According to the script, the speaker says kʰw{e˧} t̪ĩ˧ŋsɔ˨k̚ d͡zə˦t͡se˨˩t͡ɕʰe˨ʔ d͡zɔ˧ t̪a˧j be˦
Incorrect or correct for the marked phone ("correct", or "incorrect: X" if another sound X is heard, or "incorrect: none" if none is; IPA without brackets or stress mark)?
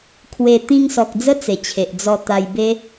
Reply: correct